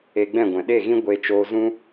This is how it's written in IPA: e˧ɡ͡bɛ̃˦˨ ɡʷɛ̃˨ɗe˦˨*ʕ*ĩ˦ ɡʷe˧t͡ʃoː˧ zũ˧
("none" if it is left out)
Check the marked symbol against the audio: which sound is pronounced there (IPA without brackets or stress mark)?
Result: ɣ